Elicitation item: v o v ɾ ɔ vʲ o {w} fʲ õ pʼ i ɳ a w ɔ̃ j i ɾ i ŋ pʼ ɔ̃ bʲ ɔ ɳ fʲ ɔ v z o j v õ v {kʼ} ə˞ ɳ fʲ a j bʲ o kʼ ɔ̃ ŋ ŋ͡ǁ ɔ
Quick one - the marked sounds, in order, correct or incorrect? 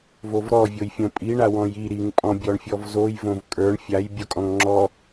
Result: incorrect, correct

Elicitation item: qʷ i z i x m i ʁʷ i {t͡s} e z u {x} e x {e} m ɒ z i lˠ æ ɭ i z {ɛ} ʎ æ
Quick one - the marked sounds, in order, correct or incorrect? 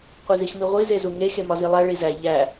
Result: incorrect, incorrect, correct, incorrect

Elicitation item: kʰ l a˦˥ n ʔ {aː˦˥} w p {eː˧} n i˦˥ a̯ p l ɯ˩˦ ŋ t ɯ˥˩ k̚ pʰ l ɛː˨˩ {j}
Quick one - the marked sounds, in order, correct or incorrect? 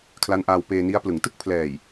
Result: incorrect, correct, correct

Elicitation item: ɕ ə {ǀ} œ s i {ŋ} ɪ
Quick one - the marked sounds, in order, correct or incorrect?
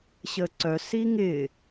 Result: correct, correct

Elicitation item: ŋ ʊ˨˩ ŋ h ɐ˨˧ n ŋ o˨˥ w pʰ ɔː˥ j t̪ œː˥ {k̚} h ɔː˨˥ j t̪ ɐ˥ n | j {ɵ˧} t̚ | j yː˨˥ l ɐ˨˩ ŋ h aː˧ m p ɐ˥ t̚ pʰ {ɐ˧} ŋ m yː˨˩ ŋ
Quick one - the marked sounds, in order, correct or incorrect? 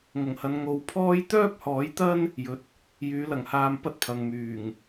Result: incorrect, incorrect, incorrect

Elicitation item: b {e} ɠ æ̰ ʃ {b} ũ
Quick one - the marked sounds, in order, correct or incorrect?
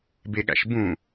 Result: correct, correct

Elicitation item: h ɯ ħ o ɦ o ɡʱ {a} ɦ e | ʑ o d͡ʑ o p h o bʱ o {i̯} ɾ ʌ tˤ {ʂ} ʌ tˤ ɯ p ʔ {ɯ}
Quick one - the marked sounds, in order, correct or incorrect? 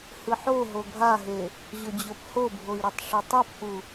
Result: correct, correct, correct, incorrect

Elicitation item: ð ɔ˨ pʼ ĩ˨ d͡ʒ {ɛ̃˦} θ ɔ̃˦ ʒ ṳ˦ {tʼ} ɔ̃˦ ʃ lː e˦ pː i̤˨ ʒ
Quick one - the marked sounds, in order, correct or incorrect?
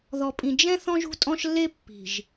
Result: correct, correct

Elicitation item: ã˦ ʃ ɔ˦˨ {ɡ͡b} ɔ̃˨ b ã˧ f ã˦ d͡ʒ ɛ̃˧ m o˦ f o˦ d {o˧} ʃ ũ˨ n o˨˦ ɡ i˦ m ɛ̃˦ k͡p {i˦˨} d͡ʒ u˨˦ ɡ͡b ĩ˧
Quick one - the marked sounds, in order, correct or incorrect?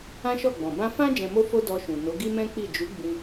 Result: correct, incorrect, correct

